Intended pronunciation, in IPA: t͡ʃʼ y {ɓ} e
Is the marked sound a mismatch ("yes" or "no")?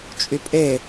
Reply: yes